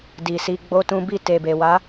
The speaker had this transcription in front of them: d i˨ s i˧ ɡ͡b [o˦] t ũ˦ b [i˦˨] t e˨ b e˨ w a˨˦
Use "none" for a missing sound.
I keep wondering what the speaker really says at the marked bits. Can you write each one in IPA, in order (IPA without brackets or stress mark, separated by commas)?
o˦, i˦˨